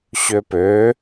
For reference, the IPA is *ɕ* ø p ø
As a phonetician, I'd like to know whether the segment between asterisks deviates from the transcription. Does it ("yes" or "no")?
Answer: no